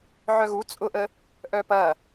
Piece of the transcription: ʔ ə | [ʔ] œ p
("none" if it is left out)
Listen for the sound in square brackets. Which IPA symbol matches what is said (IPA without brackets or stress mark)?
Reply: ʔ